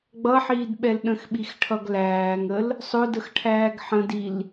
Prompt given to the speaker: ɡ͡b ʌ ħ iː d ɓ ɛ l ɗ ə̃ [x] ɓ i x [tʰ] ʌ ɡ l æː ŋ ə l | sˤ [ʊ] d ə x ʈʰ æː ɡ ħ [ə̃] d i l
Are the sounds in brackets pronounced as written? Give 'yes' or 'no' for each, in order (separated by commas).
yes, no, yes, yes